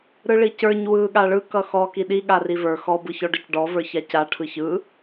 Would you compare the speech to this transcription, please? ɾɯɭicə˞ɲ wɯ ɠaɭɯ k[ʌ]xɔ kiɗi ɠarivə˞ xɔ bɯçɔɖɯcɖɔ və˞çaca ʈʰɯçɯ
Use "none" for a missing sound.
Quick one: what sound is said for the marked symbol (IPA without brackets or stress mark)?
ʌ